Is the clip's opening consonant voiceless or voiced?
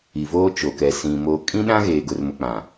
voiced